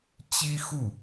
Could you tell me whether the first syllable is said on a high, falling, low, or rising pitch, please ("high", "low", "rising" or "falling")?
high